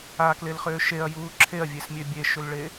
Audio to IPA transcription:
aklelχʏː ʃeɐ̯juː ǁʰeɐ̯vʲesmʲø bʲeʃʏlɭe

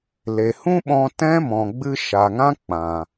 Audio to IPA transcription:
le˨hũ˦ɓɔ̃˧ tɛ̃˦mɔ̃˨ɡ͡bɨ˧ ʃa˨ŋã˦ k͡pã˨

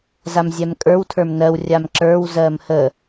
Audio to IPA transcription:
zamzʲɛmkʼə˞w tʰə˞mnɜw rʲamǁə˞w zɜmhə

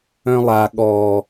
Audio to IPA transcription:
œ̃lˠa ɠɔ

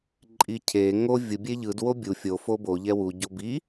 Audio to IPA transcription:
ǃʼicʰe ŋo vʲɯ bʲeʎɯd wobʲu fʲo fobo ʎɛwu ɟobi

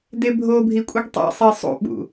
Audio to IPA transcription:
debʱobʱi kʷʼiɡtˤḭsˤi sˤṵɓṵ

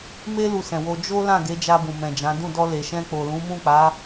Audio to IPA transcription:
me˦ lu˧sɛ̃˨wo˧ d͡ʒo˦ lã˦˨ ɡe˨˦d͡ʒa˧bũ˨ mɛ̃˨d͡ʒã˨˦ dũ˦˨ dɔ˧ le˨ʃɛ̃˧k͡po˨ lũ˨˦mũ˦˨k͡pa˨˦

